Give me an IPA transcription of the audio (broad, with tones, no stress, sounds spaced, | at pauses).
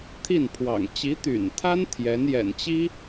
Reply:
t̪ʰ i˥˩ n pʰ w ɑ̰˨˩ ŋ t͡ɕ i˧˥ t̪ y̰˨˩ n t̪ʰ a˥ n t̪ʰ j ɛ˧˥ n j ɛ̰˨˩ n t͡ɕ i˥